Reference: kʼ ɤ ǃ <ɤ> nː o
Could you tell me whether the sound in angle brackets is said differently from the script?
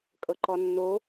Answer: yes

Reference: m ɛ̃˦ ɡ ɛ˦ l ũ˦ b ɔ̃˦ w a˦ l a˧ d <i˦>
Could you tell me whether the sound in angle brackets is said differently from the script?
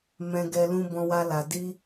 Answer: no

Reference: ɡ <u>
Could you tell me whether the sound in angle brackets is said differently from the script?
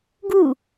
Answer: no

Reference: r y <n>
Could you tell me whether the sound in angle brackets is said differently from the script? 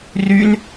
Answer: no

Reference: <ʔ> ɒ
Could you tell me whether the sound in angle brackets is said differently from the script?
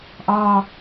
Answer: no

